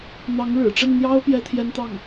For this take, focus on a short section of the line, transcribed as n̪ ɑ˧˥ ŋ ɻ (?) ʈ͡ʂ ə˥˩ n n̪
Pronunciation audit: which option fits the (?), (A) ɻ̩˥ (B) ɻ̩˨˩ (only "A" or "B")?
B